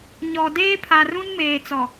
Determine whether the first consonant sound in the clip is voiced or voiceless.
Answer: voiced